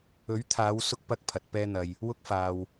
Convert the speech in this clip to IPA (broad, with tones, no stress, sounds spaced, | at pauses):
ɵ˨˥ ɥ t̪ʰ aː˨˧ w s ʊ˧ k̚ p ɐ˥ k̚ pʰ ɐ˨˥ t̚ p ɛː˥ n̪ ɐ˧ j | w ʊ˥ k̚ f aː˧ w